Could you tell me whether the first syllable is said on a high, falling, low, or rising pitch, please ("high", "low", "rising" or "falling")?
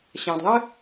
low